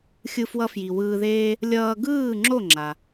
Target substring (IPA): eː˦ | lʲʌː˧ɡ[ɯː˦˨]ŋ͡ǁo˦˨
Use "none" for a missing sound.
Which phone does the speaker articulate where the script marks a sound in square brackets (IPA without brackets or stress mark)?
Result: ɯː˦˨